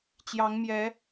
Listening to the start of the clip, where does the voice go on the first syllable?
rising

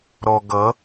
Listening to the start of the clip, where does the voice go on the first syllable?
low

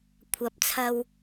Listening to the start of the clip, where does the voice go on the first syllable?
rising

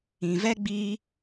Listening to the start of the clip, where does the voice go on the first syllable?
low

